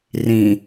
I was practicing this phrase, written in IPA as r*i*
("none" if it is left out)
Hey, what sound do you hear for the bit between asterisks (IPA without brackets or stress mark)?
ĩ